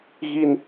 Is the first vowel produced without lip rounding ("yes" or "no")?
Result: yes